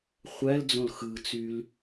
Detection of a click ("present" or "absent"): absent